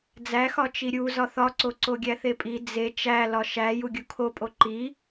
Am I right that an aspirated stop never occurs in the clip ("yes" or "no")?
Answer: no